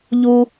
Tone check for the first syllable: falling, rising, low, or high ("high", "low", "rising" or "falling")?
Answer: high